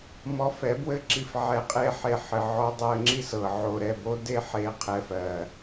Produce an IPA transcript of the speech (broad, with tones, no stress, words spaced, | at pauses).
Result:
mɔ˧fɛ˨˦bwɘ˦ ǁi˧fʕɛ˧ qʼe˦ħe˧ ħɘ˨ʕɔ˧ dˤɜ˧ŋ͡ǁi˦s ɤ˨ ʕo˨ɾɛ˦˨bo˦ de˦ħe˧ qʰɛ˧fɜ˨